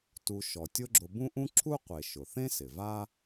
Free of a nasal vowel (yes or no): no